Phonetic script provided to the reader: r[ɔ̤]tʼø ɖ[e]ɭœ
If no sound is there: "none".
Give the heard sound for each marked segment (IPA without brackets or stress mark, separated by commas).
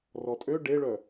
ɔ, e